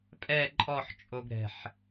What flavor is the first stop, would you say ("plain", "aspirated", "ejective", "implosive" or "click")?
ejective